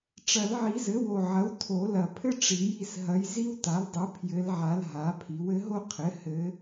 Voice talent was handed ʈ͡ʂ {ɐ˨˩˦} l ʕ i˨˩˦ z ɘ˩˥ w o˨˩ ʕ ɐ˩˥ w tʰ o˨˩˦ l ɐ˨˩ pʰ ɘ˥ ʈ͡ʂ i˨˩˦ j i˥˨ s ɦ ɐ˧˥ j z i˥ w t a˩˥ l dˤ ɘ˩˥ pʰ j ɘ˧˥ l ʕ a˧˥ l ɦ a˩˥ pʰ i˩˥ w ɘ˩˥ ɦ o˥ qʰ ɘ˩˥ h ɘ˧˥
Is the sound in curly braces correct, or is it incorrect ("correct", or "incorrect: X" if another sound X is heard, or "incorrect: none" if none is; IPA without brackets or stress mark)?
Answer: correct